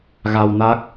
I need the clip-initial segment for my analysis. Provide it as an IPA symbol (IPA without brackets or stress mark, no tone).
ɣ